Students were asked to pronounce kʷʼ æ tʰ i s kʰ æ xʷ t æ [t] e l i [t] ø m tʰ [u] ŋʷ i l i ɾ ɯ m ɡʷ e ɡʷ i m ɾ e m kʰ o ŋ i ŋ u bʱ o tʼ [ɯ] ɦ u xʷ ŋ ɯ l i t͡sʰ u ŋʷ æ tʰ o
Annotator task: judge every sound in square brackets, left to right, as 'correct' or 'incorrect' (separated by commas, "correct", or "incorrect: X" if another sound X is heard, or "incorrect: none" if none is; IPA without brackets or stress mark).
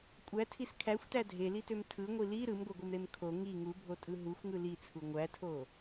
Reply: incorrect: dʱ, correct, incorrect: ɯ, correct